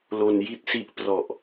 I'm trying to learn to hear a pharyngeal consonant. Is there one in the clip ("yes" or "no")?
no